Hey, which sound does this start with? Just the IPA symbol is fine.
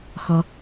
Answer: x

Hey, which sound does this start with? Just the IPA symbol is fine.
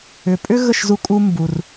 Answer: ʏ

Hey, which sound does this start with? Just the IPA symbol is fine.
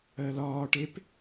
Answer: ɜ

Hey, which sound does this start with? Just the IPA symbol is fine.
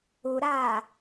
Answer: u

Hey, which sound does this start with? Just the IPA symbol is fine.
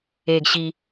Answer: eː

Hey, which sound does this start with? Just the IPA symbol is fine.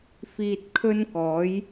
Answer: f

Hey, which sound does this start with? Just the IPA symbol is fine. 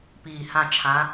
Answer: p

